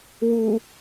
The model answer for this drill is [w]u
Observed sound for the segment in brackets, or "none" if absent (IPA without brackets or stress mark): w